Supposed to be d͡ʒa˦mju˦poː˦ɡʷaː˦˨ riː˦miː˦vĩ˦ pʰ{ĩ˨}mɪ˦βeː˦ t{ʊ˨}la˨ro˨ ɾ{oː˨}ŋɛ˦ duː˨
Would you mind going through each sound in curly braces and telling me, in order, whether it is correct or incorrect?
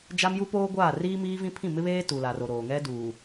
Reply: incorrect, incorrect, correct

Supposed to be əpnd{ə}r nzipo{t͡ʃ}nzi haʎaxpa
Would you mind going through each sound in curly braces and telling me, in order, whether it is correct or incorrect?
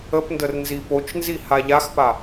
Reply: correct, correct

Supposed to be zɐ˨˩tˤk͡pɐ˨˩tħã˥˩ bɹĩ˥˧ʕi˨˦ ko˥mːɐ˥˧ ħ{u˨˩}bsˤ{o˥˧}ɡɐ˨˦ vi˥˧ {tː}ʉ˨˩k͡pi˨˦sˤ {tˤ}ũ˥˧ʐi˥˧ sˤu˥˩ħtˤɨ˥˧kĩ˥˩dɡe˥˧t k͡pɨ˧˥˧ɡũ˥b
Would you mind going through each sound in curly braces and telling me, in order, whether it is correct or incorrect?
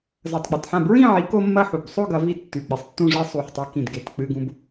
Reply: correct, correct, correct, incorrect

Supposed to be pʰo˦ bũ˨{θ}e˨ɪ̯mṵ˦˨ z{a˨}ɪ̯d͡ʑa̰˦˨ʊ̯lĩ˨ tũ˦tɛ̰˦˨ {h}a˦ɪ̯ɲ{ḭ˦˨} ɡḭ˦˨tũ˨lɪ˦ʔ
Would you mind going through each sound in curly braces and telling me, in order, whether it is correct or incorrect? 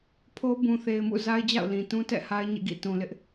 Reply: correct, incorrect, correct, incorrect

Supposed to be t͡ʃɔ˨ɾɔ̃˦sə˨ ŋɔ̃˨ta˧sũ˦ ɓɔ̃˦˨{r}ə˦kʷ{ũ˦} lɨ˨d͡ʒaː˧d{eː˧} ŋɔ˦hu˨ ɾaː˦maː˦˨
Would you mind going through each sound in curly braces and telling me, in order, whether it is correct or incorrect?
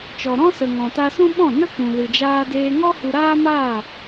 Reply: incorrect, incorrect, correct

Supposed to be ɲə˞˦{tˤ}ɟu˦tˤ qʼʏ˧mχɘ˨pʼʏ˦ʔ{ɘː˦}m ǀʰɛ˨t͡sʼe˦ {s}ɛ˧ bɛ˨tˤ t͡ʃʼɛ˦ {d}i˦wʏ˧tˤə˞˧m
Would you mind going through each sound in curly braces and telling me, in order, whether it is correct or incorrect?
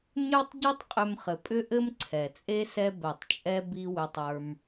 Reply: correct, incorrect, correct, incorrect

